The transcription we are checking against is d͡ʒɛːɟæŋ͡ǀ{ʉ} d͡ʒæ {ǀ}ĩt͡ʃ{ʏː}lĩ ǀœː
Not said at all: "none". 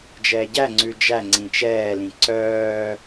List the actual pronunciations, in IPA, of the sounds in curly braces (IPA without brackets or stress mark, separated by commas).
ʉ, ŋ͡ǀ, ɛː